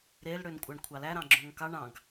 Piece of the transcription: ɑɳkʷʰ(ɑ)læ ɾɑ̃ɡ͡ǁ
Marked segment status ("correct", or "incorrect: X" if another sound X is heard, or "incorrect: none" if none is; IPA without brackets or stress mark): correct